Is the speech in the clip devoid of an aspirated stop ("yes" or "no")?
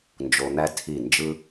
no